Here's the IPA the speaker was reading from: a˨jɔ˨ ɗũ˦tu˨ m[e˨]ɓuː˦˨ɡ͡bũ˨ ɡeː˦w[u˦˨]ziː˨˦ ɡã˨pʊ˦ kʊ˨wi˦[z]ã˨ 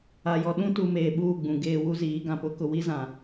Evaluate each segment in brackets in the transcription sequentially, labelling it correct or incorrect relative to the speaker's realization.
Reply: incorrect: eː˨, incorrect: u˦, correct

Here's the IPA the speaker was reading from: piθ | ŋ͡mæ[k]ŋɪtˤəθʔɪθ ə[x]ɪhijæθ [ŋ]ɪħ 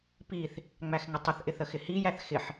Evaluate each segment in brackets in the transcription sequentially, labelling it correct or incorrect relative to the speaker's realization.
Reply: incorrect: x, correct, incorrect: x

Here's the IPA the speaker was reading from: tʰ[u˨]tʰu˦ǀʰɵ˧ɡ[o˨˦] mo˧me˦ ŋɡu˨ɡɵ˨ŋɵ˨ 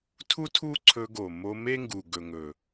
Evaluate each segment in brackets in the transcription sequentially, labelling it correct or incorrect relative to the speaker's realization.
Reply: incorrect: u˦, incorrect: o˨

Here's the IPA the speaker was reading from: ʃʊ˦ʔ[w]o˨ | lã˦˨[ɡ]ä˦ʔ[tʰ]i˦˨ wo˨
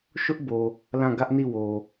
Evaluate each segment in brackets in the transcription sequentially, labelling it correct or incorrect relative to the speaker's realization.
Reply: incorrect: b, correct, incorrect: n

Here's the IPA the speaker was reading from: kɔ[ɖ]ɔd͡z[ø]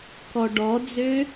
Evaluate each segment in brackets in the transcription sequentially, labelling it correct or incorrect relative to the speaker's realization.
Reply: correct, correct

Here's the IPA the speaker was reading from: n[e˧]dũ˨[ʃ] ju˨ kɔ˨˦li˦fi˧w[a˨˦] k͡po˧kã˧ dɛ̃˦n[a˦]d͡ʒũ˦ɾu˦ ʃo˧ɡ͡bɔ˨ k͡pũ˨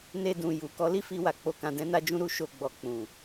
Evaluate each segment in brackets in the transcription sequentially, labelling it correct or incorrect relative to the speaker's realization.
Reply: correct, incorrect: none, incorrect: a˨, correct

